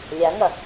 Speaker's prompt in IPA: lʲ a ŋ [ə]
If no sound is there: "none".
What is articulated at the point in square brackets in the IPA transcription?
ɐ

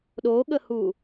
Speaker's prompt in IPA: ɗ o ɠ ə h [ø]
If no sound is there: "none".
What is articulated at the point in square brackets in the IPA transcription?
u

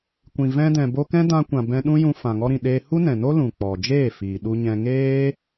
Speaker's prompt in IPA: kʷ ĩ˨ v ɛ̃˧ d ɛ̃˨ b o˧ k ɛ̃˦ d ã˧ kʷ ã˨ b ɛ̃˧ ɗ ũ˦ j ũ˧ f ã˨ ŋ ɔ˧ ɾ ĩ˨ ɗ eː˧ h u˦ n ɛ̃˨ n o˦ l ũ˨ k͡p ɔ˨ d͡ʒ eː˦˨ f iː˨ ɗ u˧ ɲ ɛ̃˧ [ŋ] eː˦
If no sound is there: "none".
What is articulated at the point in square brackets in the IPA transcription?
ŋ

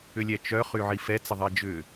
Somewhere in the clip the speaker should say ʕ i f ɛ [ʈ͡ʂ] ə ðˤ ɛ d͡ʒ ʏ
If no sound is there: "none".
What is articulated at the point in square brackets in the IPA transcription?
t͡s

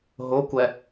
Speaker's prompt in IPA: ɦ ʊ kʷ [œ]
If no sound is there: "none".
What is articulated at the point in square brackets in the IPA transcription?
ɛ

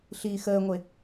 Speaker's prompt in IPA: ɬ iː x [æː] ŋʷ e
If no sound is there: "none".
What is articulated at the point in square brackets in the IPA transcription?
əː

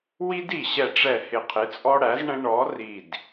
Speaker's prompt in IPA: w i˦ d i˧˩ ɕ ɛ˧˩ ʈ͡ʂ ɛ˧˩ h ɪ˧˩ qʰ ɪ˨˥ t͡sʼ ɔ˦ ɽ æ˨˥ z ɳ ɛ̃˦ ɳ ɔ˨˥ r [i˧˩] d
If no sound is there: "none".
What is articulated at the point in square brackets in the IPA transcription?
i˧˩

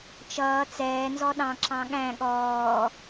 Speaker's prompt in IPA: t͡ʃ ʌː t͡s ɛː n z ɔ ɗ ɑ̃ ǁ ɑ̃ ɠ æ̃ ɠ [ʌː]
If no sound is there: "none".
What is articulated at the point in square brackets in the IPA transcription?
ɔː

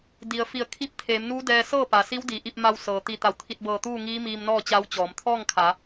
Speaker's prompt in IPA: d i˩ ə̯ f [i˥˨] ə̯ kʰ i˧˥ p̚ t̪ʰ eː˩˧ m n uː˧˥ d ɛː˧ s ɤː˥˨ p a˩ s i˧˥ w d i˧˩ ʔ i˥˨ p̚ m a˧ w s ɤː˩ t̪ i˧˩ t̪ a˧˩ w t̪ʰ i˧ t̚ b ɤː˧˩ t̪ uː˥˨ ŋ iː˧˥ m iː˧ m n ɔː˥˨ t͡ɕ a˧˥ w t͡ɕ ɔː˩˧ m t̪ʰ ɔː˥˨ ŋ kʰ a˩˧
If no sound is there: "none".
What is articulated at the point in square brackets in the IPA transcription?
i˧˩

